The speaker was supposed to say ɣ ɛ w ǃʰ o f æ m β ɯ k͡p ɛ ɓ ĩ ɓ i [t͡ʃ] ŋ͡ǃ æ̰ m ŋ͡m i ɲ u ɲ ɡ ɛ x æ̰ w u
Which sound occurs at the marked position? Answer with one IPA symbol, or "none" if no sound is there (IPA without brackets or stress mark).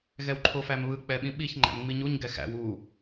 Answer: ç